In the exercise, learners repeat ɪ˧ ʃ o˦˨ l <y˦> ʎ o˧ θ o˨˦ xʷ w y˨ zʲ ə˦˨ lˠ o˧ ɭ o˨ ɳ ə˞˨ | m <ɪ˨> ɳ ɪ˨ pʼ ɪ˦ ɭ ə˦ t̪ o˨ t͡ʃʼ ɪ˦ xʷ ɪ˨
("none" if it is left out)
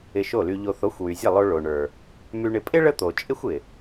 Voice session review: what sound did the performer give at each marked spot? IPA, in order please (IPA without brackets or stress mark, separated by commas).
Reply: y˧, y˨